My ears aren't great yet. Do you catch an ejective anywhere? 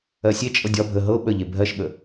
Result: yes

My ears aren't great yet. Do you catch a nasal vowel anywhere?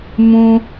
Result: yes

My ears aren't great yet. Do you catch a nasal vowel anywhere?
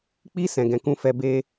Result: yes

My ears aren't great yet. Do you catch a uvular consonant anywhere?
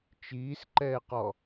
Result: yes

